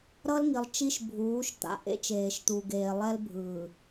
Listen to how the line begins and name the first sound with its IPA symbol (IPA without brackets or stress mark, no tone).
ɾ